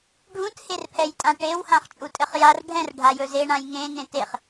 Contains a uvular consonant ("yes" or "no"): yes